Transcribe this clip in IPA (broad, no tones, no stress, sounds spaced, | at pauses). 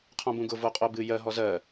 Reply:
qʰ ɔ̃ b ũ ɡ ʊ v o qʼ o b ɨ j ɜ ɦ ɔ z ɜ